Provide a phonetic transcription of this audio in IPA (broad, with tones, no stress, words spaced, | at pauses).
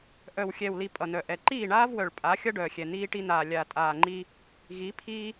ʔœ˨wxʲɛː˨wli˨ pʼʌ˨nœ˨ʔɛ˨ ǃiː˦˨ɳaː˦vwœ˨ɭ pʼa˨˦ xʲʌ˦ɖœː˨xʲɛ˨ niː˦ʈi˦naː˨ lʲaː˨tʼaː˨ŋ͡ǃi˦ | ɣi˨˦pʰiː˦